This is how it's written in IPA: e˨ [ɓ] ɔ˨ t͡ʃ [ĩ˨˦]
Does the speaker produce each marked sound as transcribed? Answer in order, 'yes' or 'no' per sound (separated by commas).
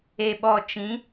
yes, yes